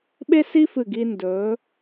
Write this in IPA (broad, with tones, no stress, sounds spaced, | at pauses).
ɓ e˥ s i˥ f ɨ˧˩ ɡ i˧ n d ɵː˩˧